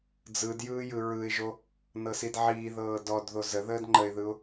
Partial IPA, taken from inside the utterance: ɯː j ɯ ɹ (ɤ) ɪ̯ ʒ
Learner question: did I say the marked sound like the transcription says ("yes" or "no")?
no